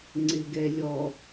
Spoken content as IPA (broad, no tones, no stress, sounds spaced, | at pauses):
ŋ͡ǀ ɪ ɡ ɛ lʲ ɔ